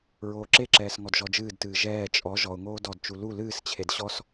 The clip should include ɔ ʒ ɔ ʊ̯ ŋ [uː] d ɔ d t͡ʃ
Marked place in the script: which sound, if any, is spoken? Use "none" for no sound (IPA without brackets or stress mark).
oː